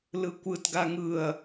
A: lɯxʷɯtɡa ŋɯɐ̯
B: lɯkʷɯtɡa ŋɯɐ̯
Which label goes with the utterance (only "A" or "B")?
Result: B